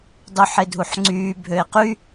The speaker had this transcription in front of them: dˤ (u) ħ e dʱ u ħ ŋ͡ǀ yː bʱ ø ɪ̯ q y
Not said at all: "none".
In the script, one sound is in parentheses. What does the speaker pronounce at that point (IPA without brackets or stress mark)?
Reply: u